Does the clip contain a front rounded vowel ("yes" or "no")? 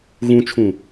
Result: no